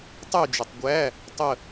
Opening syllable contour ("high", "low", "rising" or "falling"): falling